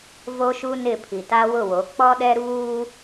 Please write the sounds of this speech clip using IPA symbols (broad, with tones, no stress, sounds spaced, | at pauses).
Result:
v o˦ ʃ u˦ n ɪ˦˨ pʰ i˨ t a˦ w ʊ˦˨ w o˨˦ k͡p ɔ˦ ɗ ɛ˦ ɾ uː˦